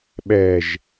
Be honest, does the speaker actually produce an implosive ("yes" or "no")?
yes